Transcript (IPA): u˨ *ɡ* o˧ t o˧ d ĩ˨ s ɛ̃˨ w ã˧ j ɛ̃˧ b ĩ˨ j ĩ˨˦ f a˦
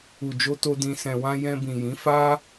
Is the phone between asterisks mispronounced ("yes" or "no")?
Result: yes